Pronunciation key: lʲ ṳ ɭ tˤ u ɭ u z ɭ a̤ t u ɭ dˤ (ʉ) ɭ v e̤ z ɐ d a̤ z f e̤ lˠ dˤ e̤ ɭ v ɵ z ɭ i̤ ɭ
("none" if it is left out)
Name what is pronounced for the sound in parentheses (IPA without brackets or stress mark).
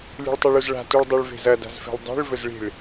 ʉ